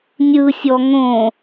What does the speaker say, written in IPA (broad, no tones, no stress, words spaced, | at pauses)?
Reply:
nʲɯsʲɔ ŋõ